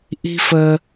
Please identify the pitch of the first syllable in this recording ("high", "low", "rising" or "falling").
high